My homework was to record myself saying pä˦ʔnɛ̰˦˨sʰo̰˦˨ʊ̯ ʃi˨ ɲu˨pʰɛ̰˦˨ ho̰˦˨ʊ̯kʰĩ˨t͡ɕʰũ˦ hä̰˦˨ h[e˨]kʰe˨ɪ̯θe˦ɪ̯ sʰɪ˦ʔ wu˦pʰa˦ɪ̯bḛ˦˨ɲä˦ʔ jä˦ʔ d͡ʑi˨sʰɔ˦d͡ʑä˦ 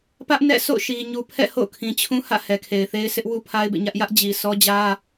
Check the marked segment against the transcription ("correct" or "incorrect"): incorrect